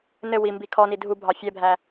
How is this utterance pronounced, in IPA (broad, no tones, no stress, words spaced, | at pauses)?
nɘ wimbi kʰɔni dʱubʱɑ fʲɛbʱæ